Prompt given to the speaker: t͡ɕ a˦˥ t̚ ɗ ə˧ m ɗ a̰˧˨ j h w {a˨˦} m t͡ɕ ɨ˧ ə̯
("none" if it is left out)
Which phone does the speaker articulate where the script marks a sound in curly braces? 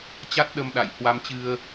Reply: a˧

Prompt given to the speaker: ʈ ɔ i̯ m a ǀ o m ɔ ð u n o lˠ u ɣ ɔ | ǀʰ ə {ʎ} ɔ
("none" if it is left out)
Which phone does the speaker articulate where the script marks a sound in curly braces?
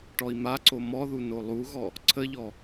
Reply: ʎ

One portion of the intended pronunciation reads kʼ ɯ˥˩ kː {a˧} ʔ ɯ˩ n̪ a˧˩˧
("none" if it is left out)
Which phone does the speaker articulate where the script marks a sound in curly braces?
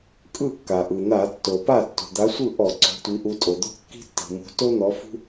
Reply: a˩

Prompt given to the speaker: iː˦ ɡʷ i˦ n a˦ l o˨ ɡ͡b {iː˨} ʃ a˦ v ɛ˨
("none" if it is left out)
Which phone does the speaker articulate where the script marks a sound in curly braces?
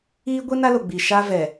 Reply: i˨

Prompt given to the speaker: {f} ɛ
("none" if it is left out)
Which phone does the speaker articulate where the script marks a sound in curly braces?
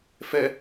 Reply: f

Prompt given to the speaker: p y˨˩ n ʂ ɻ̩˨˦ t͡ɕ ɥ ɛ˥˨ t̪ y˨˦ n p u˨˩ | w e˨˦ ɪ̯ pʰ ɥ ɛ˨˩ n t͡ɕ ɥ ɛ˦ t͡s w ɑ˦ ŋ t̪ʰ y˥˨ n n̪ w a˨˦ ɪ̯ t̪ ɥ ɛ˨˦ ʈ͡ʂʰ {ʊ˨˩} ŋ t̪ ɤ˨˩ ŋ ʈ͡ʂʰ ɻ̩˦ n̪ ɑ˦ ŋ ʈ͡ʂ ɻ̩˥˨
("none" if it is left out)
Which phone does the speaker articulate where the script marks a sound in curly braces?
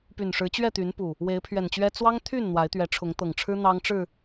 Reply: ʊ˨˦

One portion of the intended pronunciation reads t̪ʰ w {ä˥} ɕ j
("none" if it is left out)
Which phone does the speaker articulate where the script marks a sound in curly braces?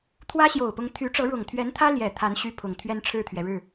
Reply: ä˥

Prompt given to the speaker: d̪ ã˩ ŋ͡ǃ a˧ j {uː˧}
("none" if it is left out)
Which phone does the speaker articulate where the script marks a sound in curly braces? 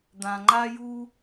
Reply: uː˧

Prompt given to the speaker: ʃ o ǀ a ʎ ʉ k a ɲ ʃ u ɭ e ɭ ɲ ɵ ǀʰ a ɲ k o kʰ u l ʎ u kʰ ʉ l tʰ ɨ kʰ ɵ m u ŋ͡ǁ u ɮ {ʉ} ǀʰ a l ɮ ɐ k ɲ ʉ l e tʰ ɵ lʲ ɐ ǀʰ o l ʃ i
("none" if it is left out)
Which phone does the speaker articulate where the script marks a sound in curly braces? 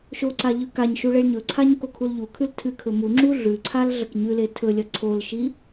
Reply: ʉ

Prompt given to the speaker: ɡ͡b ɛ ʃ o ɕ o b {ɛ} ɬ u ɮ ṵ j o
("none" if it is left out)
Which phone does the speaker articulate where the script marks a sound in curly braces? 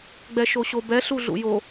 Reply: ɛ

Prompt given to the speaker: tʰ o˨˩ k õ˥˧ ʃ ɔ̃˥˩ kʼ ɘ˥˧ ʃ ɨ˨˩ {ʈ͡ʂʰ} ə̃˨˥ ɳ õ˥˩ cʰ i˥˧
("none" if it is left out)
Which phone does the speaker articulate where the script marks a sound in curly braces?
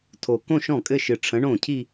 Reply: ʈ͡ʂʰ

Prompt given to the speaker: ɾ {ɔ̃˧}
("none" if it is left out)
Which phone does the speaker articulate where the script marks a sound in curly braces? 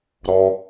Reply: ɔ˧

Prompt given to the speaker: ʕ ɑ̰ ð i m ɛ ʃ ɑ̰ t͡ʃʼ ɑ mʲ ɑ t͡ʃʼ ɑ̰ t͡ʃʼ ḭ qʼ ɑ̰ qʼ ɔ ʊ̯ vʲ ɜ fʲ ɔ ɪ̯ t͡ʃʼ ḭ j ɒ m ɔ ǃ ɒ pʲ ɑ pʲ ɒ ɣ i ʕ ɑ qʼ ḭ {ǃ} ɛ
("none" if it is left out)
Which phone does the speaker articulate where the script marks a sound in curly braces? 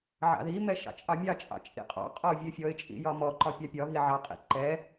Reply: ǃ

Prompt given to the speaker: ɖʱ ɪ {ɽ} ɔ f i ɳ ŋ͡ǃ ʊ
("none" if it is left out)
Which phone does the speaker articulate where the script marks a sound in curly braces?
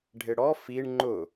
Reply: ɽ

